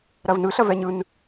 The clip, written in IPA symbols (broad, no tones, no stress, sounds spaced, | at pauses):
ɾ ɐ v n ɯ ɬ ɐ v ɛ ɲ ɯ n